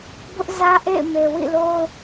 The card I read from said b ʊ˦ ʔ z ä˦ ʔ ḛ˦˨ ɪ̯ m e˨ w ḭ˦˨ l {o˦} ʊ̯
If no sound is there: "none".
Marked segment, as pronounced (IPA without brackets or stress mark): o˦